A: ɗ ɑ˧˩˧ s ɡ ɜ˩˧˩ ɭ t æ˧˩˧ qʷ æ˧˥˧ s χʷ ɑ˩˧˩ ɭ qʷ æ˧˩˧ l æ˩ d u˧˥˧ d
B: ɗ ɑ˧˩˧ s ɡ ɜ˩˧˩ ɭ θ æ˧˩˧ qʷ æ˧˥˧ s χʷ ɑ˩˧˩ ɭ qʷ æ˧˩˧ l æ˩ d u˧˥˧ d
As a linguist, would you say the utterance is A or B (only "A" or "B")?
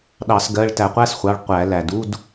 A